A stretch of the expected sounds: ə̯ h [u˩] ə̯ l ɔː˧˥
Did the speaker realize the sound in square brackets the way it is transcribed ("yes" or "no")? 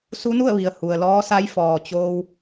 yes